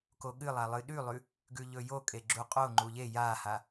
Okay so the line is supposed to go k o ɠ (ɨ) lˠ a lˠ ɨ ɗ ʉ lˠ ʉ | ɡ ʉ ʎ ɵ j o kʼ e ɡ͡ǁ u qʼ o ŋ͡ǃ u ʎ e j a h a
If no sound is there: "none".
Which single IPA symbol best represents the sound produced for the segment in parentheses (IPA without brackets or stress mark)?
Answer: ɨ